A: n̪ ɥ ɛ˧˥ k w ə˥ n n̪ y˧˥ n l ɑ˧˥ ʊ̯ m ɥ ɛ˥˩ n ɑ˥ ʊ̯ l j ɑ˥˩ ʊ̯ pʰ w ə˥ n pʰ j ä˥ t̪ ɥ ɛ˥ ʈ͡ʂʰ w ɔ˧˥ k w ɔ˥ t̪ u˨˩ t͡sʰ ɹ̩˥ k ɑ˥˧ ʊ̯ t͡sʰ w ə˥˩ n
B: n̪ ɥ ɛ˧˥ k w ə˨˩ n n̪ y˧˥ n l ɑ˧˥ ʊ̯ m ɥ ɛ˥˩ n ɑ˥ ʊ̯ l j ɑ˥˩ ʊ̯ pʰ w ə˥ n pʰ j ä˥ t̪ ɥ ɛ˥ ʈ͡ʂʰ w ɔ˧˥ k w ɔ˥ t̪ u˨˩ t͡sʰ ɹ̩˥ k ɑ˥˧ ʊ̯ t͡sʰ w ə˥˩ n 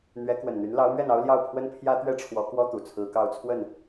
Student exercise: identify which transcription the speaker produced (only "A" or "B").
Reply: B